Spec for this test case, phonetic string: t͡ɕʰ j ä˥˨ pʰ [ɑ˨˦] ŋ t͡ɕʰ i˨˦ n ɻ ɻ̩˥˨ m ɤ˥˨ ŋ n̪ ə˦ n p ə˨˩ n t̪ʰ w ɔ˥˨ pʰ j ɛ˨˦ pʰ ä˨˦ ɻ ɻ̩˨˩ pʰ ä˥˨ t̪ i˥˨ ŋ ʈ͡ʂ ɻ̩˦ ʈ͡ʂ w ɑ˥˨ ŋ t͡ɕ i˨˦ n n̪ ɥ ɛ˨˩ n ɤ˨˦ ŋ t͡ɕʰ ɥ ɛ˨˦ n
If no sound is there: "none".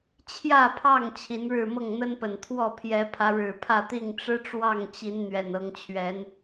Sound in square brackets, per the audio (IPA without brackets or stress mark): ɑ˥˨